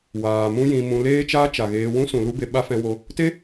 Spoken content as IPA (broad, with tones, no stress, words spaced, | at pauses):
waː˨mũ˦jĩ˧mũ˧ leː˦t͡ʃaː˦t͡ʃa˨ ɣeː˧wũ˦sũ˨ lu˦be˧ɓa˦ fɛ̃˧wo˧ | te˦